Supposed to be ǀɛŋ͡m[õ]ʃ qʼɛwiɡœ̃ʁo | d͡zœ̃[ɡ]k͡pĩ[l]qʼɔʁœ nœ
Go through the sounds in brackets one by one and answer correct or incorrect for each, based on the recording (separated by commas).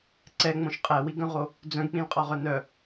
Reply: correct, correct, correct